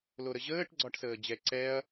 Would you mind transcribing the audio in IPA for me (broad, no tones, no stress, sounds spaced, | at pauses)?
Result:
l o ɾ ə ʑ əː ʈ ɡ͡ǀ ɒ ʈ s əː d͡ʑ ɛ ǀ ɛ ɐ̯